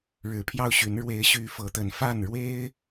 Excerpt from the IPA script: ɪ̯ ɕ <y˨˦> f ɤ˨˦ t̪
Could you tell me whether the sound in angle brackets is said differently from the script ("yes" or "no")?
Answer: no